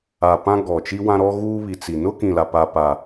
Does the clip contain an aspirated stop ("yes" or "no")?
no